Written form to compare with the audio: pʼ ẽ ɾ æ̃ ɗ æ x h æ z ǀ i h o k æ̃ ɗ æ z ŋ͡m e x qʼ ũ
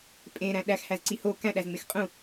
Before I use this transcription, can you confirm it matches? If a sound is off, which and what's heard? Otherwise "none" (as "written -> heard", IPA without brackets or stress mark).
none